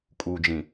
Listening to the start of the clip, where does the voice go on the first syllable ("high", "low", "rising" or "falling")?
low